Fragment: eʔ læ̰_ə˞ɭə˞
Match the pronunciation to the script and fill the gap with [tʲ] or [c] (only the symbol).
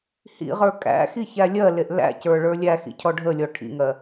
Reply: c